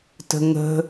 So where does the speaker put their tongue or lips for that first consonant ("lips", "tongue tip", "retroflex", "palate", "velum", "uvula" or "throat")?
tongue tip